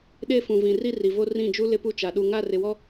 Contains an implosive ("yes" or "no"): yes